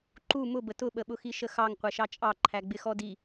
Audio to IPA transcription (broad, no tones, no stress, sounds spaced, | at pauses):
ǃ u m ʊ b ə t ʊ ɓ ə ɓ ʊ x i ʃ ə x ɑ ŋ qʷ ɛ ʃ ɑ t͡ʃʼ ɑ ǃʰ æ ɡ͡b ɪ x ɔ d i